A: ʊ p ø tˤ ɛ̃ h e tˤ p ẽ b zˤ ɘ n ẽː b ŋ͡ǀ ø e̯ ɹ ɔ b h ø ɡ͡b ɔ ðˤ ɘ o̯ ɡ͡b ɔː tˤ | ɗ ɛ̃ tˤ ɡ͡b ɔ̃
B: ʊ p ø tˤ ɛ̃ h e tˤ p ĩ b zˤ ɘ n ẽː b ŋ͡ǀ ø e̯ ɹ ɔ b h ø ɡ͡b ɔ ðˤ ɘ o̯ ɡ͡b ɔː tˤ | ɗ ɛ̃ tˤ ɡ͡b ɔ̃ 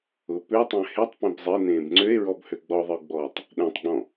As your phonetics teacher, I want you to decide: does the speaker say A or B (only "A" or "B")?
A